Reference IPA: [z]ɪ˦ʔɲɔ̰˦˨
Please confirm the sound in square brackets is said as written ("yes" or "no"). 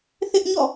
no